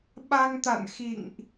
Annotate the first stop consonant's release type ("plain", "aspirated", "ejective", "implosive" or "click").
implosive